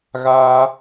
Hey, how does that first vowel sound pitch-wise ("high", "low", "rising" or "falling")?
high